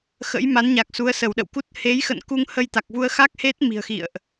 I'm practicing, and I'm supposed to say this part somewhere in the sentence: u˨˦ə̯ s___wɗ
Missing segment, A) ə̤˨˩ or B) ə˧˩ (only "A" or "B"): B